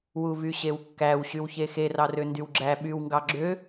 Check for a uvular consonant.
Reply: absent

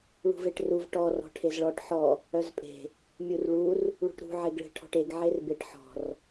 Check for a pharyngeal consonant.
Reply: present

